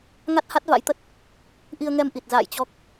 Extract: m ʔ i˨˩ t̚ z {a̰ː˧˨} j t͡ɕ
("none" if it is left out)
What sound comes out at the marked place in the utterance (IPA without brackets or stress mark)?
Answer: a̰ː˧˨